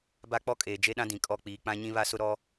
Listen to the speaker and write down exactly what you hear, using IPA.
ba˦k͡pɔ˦kʼeː˨ d͡ʒe˦ɗã˦dĩ˨ kʼɔ˦˨k͡piː˨ k͡pã˦ɲĩ˦βa˦sʊ˦ ɾɔ˦

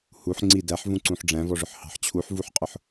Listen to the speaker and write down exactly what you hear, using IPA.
huħ ŋ͡ǀi dæħvũǀũħ ɖ͡ʐæ̃vɔʐʊħhɑ̤ħ t͡ɕʰuħvuħqʼʊħ

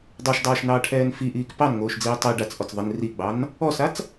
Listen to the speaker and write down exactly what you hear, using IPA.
dˤoʃdˤaːʃnɑːʈʰɛːn fiʔiːk pɑnŋoːʃd͡ziː tˤi ɖat͡sʔɔt͡s ðˤɪn riɡ͡bɑn | ɔsat͡s

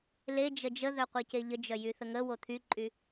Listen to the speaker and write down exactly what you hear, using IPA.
led͡ʒə d͡ʒəðœqʷece ʎəd͡ʒœjyθə ŋəwo t̪ʰyǃʼy

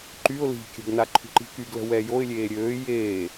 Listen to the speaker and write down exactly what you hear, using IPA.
ǃyʊ̯ li̤ kʲə̤ɡna ǃʰṳǃi̤kyɡlə̤ wɛjoɪ̯lʲeː ɾʲøː jeː

